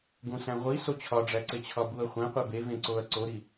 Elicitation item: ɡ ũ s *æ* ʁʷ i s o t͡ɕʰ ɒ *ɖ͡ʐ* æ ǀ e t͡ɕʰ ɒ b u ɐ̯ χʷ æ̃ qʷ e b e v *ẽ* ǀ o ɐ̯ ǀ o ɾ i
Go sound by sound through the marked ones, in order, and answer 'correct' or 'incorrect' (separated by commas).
incorrect, correct, correct